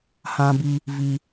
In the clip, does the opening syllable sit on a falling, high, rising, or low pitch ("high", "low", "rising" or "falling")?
high